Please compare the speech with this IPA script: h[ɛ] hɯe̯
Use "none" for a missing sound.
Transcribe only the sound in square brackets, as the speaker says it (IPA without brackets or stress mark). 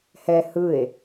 ɛ